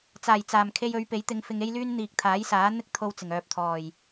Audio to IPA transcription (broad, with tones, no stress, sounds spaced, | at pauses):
t͡s aː˨˩ j t͡s aː˨˩ m kʰ e˧ j ɵ˨˧ ɥ p e˨˥ j t̪ ɪ˨˧ ŋ f ɪ˨ ŋ e˥ j l yː˥ n n̪ iː˨ k̚ t̪ʰ aː˨˥ j s aː˨˥ n̪ ɪ˥ k̚ t̪ʰ o˧ w t͡s ɪ˨˩ ŋ œː˨ p̚ t̪ʰ ɔː˨˩ j